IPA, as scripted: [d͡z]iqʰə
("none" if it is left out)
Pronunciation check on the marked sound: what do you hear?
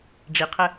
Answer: ɖ͡ʐ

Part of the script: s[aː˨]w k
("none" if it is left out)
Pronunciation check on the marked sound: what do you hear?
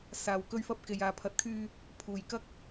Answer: aː˨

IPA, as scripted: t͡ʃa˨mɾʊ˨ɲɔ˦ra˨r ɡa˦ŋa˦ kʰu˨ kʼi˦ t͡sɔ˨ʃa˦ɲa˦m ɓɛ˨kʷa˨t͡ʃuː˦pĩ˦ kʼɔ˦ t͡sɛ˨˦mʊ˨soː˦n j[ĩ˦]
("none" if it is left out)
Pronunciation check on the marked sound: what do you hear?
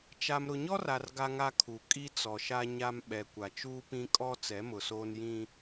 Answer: ĩ˦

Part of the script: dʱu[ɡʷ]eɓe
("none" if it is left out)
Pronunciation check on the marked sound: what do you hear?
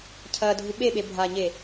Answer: ɓ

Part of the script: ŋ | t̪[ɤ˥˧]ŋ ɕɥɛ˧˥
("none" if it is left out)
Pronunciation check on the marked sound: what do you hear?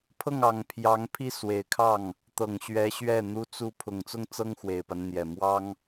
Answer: ɤ˨˩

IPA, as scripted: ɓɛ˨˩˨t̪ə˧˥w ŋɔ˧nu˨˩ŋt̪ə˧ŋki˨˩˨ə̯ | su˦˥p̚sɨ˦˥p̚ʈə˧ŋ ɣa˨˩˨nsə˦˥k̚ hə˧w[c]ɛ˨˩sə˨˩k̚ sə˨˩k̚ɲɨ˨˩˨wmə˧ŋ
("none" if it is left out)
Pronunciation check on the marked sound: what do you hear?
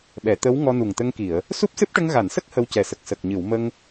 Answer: c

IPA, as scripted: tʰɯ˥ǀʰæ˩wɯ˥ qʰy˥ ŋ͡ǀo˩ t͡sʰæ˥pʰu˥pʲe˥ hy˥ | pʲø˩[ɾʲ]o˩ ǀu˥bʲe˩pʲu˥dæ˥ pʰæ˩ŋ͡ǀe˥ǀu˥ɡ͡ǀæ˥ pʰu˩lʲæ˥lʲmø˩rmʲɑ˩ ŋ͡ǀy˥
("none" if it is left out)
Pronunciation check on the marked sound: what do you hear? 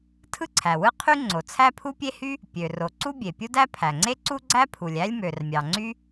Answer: r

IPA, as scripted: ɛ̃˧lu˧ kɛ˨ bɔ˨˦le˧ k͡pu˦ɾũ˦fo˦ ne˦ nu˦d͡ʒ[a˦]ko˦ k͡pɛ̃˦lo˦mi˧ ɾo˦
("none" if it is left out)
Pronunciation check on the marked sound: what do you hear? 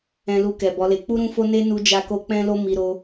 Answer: a˦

